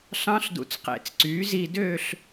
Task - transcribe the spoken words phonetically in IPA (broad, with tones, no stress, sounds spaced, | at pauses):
ɬ ɑ̃˧˥ ɬ d ṵ˨ t͡s q ḛ˨˩˦ t͡s ǀ yː˩˥ z i˥˧ d ø˥˧ ɬ